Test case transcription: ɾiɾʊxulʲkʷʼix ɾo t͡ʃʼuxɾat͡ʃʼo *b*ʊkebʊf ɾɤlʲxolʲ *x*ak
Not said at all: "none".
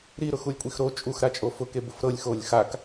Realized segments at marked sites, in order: f, x

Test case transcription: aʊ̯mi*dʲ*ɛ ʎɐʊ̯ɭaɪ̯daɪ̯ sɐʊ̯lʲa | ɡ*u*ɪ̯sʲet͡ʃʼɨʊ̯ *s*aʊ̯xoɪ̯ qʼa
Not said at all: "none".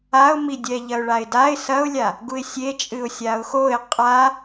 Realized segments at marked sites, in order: dʲ, u, sʲ

